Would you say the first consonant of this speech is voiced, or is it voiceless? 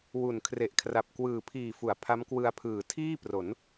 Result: voiced